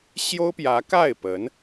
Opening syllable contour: high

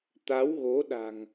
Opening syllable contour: rising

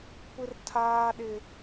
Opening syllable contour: high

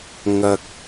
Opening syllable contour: high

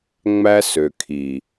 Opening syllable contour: high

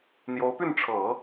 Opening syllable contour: rising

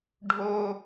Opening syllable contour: high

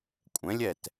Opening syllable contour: rising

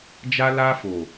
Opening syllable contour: high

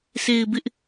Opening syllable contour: low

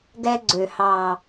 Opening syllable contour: high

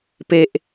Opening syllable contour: low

